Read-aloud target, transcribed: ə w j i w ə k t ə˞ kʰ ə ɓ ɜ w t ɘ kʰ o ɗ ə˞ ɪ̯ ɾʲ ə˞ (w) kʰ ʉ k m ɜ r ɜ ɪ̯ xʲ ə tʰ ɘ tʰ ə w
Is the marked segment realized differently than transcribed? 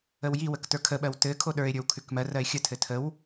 no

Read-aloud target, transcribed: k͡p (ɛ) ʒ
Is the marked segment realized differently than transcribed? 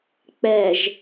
no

